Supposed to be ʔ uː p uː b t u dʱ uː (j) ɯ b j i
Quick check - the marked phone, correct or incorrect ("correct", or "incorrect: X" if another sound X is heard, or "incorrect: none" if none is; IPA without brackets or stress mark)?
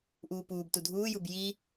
correct